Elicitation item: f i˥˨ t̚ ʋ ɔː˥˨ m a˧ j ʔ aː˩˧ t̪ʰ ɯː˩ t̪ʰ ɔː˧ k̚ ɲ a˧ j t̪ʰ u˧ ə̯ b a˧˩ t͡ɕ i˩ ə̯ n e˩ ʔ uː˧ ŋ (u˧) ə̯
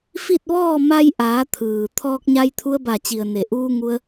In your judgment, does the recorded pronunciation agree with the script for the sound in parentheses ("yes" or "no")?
yes